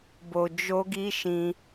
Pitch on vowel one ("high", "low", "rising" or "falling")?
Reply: low